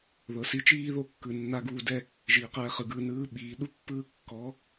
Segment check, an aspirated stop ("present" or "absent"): absent